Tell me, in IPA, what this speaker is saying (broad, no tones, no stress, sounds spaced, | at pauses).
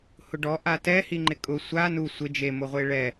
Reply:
h ʊ ɖ ɔ ʔ a t ɛ h i ŋ͡ǃ ɪ kʼ ʊ sʷ a n u sʷ ɪ d͡ʒ e m o ʁʷ e ɭ ɛ